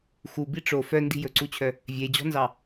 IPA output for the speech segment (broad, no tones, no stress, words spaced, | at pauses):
xu biʈ͡ʂo fœ ndi̤jɵǀut͡ɕʰœ | vʲed͡ʑɔ̤nzɑ